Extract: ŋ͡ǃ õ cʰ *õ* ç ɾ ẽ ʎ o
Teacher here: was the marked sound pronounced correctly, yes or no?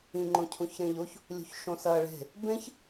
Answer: no